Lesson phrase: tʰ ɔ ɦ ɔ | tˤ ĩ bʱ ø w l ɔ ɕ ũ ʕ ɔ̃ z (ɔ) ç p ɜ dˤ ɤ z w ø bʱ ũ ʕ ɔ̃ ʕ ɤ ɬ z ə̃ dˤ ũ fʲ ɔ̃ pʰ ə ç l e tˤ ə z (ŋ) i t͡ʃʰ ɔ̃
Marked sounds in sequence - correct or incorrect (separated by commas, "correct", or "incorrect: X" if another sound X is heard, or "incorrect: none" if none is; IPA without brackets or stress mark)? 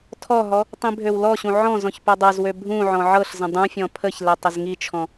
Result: incorrect: ɔ̃, correct